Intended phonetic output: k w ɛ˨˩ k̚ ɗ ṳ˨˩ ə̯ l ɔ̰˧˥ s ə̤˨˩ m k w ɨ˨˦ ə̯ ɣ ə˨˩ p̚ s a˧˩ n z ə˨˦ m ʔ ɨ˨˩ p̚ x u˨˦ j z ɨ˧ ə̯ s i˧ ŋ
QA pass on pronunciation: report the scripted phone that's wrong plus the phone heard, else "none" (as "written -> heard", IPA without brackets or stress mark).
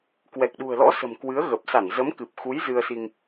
ʔ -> k